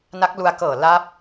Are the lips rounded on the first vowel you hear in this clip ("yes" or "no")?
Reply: no